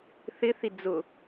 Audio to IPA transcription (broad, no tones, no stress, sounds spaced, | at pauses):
θ ɪ θ i d͡z ʊ